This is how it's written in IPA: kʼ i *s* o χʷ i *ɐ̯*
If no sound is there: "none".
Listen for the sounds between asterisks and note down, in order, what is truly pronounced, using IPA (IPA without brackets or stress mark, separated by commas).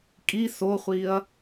s, ɐ̯